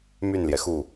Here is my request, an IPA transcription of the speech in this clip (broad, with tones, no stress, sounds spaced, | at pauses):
m y˥˩ n l j ɛ˩ x u˥˩